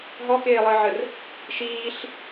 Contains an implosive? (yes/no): no